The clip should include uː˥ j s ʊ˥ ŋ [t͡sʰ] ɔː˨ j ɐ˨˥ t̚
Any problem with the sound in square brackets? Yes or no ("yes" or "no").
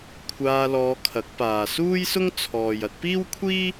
no